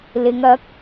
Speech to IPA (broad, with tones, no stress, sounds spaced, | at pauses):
l ɪ˨˧ ŋ ɐ˨˥ k̚